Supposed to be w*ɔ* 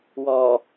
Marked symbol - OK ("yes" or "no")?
yes